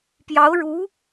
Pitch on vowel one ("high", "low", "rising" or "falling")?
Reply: rising